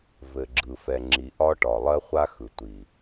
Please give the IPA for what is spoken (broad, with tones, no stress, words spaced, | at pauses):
vɘ˨ɡ͡ǁɯ˨ fɛ˨ŋ͡ǁi˨ ʔɒ˦ʈɒ˨ lˠɜ˦χʷa˦xɯ˨ tʷi˨